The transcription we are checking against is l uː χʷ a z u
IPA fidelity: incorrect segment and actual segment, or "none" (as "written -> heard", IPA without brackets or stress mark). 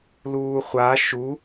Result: z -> ʃ